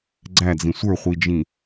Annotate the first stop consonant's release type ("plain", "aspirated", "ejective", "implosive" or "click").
click